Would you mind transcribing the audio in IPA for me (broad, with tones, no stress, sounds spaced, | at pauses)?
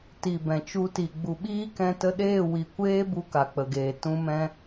t i˨ b ɛ̃˨ t͡ʃ u˧ t i˨ ɡ͡b u˨ ɓ iː˦ k ɛ̃˧ t ə˧ ɗ eː˦˨ w i˨ kʷ eː˦ b u˧ k a˨ k͡p ə˨ ɡ eː˨ t ũ˧ m ɛ̃˧